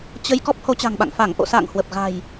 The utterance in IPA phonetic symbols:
t͡ɕ ə˧ j k ɔ˦˥ p̚ h o˨˦ t͡ɕ a̤˨˩ ŋ ɓ a̰˧˨ ŋ f a˧˩ ŋ ʔ o̰˧˨ s a̰ː˧˨ ŋ h w ə˨˩ p̚ ɣ a̤˨˩ j

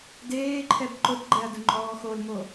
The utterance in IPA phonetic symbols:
d eː ǃʰ ɛ b ǃ ʊ t ɡ͡ǃ ɛ ɐ̯ d ʊ ŋ͡ǃ ɔː x o l m o

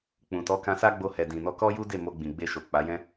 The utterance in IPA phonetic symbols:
k͡p ũ˨ t ɔ˨˦ k ã˧ s a˦ ɡ͡b o˧ h ɛ˨ d ĩ˨ n ɔ˧ k ɔ˦ j u˦ d e˦˨ m o˧ ɡ͡b ĩ˨ ɡ͡b e˧ ʃ o˨ k͡p a˨˦ j ɛ̃˦

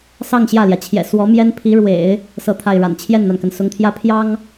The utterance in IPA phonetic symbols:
s ɑ˥˧ ŋ ɕ j ä˥˩ l j ä˩ t͡ɕʰ j ɛ̰˨˩ s w ɔ˧˥ m j ɛ˥ n pʰ i˧˥ ɻ w ḛ˨˩˦ ɪ̯ | s ɤ˥˧ t̪ʰ a˥˩ ɪ̯ ɻ a̰˨˩ n t͡ɕʰ j ɛ˥˩ n n̪ a˩ n k ə˩ n s ʊ˧˥ ŋ t̪ʰ j ä˥ pʰ j ɑ˥ ŋ

